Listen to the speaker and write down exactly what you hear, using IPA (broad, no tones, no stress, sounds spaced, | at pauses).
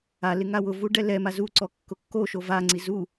a l ɪ ŋ a w ʊ v u ɖ ɛ l ɛ m a z u ǀ ɔ kː ʊ kː o ʃ o v a ŋ͡ǀ i z u